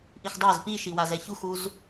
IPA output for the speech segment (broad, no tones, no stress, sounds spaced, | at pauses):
ʔ i x dˤ a z p i ʃ i w a z ɛ ç u x u z